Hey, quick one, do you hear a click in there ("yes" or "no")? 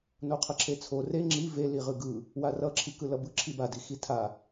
yes